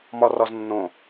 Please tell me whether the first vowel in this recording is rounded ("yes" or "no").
yes